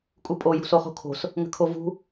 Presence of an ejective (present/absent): present